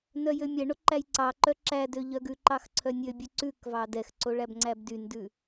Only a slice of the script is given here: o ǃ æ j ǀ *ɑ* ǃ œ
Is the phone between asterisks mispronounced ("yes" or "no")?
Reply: no